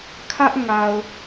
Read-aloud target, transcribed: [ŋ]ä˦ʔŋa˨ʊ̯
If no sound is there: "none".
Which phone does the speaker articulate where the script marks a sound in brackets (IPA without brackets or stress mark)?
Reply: kʰ